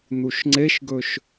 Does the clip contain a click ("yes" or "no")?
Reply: yes